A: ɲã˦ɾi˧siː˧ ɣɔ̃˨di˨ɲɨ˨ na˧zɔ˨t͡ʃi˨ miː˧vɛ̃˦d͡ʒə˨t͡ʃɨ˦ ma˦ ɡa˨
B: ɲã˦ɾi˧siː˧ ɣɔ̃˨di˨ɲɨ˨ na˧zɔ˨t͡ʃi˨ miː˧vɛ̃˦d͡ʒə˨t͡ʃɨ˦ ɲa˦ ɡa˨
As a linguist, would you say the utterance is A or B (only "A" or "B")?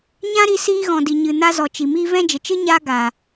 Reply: B